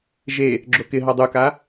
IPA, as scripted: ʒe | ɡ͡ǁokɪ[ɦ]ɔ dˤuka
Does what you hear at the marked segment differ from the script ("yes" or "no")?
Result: no